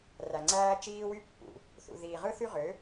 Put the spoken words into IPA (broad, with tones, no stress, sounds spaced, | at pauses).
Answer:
r æ˨ ŋ͡ǀ æː˦ t͡ʃ iː˦ w y˦ pː ṵ˨ | θ ṵ˨ ð iː˨ ʁ ɯ˦ θ y˦ ʁ ø˨˦